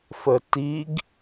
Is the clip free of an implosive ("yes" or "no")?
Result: yes